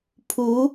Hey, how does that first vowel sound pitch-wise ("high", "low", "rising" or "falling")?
rising